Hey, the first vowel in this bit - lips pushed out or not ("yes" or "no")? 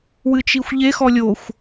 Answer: no